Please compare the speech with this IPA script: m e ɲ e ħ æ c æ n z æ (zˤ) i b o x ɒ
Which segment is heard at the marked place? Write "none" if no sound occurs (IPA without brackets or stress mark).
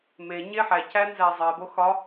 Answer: zˤ